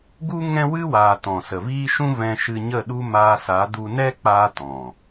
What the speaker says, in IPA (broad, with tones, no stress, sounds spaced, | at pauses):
ɡ u˦ ŋ ɛ̃˦ w ɨ˦ w aː˨ t ɔ̃˨ s ə˨ v iː˦ ʃ ũ˦ v ɛ̃˧ ʃ ɨ˧ ɲ ə˦˨ ɗ u˦ m aː˧ s a˨˦ d u˧ n ɛ˦ k͡p aː˧ t ɔ̃˨